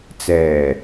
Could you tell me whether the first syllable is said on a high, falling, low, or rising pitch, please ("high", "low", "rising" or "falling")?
low